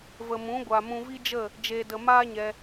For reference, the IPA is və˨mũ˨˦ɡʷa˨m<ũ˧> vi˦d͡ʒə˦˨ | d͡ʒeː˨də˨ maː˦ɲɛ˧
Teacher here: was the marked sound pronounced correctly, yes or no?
yes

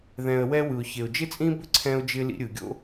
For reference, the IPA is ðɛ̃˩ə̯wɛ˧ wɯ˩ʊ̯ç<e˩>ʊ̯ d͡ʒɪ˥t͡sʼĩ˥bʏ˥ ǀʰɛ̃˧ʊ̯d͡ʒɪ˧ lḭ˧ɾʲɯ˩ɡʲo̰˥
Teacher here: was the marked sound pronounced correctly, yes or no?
yes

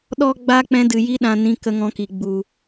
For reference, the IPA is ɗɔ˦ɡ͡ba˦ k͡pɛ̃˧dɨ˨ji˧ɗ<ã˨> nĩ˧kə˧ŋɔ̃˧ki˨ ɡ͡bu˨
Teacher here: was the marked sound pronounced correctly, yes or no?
yes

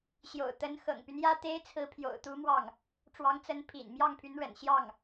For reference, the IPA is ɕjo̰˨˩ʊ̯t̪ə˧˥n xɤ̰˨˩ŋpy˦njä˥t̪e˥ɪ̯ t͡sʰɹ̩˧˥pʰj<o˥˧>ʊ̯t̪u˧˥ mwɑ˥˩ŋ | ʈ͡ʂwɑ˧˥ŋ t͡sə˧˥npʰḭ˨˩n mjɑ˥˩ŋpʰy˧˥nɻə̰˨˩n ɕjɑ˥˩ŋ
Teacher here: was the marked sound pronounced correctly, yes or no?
no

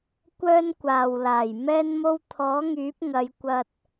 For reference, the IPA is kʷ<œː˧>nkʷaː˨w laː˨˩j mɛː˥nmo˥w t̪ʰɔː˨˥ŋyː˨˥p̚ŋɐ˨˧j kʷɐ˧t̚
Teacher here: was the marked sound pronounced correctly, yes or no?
no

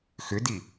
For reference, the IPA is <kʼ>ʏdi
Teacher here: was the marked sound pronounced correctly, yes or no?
no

